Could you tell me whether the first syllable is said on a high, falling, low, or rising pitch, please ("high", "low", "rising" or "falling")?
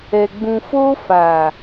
low